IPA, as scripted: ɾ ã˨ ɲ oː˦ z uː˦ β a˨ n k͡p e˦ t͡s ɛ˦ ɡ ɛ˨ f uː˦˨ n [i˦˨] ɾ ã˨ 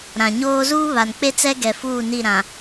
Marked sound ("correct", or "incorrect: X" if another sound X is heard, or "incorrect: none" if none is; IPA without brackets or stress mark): correct